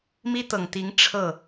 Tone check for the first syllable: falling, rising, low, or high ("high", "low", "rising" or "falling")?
high